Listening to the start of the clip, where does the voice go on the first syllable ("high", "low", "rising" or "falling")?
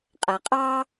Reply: low